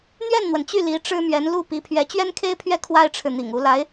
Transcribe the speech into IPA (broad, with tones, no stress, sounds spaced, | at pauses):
n̪ ɥ ɛ˥˩ n n̪ w ə˩ n t͡ɕ y˥˩ l i˧˥ ʈ͡ʂ ɻ̩˥ m ɥ ɛ˧˥ n l u˥˩ p i˧˥ pʰ ɥ ɛ˧˥ t͡ɕ ɥ ɛ˥ n kʰ e˥ ɪ̯ pʰ ɥ ɛ˥˩ kʰ w a˥ ɪ̯ ʈ͡ʂʰ ɻ̩˨ n̪ ḭ˨˩ ŋ u˧˥ l a˧˥ ɪ̯